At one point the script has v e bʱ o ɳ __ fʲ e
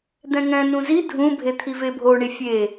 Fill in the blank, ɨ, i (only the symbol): i